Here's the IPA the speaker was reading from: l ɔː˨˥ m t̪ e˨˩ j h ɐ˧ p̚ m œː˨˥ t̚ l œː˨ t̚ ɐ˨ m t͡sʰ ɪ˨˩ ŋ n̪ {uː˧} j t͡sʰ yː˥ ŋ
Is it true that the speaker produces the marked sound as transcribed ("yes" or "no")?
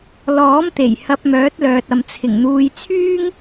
yes